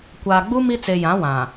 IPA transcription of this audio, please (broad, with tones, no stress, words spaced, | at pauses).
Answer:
kʷaː˨ɡ͡bu˦ mi˦ t͡se˨jã˨˦ wã˨